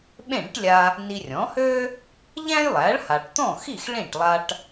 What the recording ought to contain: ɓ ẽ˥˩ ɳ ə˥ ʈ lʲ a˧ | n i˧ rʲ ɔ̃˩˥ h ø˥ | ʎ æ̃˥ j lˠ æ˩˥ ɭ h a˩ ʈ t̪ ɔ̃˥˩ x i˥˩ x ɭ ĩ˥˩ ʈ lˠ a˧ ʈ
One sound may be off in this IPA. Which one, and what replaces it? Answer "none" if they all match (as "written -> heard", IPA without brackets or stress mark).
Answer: none